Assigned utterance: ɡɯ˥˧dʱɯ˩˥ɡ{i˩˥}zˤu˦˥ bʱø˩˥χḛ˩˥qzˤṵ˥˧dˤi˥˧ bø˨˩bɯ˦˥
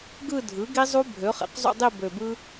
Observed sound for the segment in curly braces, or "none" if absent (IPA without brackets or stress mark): i˦˥